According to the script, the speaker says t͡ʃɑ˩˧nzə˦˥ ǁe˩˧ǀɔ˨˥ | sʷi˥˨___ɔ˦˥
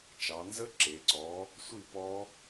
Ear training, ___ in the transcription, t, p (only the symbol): p